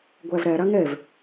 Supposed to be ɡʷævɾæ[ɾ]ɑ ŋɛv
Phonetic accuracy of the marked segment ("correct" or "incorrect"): correct